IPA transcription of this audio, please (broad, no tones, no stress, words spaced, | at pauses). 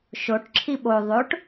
ʃoʈ ǁʰiɓo ðˤoʈ